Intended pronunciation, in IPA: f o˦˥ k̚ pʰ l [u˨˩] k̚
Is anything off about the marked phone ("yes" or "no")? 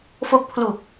no